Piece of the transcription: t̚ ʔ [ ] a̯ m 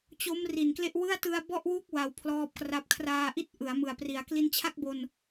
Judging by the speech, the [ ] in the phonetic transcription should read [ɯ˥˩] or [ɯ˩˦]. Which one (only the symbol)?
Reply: ɯ˩˦